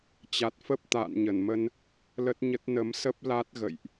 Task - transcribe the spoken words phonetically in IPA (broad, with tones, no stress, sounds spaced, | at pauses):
t͡ɕ a˨˩ t̚ f ə˦˥ p̚ t̪ a̰ː˧˨ n ɲ ə˧˩ n m ə˧ n | l ə˦˥ t̚ ɲ ə˦˥ t̚ n ə˨˦ m s ə˦˥ p̚ l a˦˥ t̚ ɣ ə̰˧˨ j ʔ